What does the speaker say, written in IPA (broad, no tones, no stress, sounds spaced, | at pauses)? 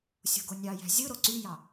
sʲ o̤ ɡ o nʲ ɑ j æ̤ zʲ ɯ ɾ o ǀ y j ɑ